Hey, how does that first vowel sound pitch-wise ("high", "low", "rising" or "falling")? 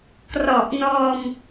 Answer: low